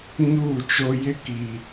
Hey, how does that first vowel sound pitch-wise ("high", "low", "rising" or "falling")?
falling